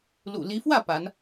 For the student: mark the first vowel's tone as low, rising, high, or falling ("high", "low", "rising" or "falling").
low